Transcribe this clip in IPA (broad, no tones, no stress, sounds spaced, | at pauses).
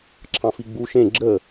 ǁʰ ɑ̃ f i ɡ͡b u ʃ ẽ ɡ͡ǁ ə